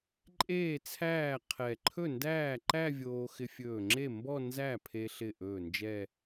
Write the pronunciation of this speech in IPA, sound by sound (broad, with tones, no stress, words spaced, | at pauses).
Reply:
ǃʼeː˥˩t͡sʰæː˥˩ qʰɛ˧˩ ǃʰɵ˥˩ndæː˥˩ǃæ˥˧vʲoː˧ xɪ˧fʲɵː˧˩ŋ͡ǁe˥˩ mbɔ˥˧ nzæ˥˩pʰe˧ ɬɪ˥˩ʔɵː˥˩ nd͡ʒɛ˥˧